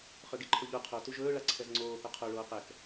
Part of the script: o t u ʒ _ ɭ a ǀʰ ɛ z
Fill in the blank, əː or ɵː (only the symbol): ɵː